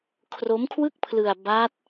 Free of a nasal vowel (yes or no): yes